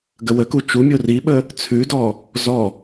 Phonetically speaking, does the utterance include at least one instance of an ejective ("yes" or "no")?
no